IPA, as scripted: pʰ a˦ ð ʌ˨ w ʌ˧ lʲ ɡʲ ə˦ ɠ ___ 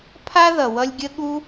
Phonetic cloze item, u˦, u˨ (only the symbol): u˦